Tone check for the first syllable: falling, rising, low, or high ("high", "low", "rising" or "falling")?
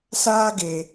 high